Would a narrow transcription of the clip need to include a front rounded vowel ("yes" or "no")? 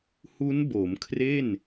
no